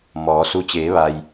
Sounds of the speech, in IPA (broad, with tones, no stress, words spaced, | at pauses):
mɔː˩˧su˧ t͡ɕeː˩˧ʋa˩j